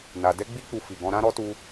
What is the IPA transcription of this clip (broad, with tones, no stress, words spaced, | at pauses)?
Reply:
na˨ dɛ˧ɡ͡bi˧k͡pu˨ fi˨ɡɔ̃˧ ɾã˦ɾɔ˦tu˧